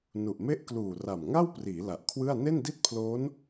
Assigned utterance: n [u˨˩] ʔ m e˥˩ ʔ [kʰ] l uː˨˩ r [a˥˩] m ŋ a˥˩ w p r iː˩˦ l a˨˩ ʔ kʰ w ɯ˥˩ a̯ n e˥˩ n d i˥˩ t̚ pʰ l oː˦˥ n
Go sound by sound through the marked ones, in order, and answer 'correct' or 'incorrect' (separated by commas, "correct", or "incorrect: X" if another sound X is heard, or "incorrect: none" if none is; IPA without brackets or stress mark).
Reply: correct, incorrect: k, incorrect: a˨˩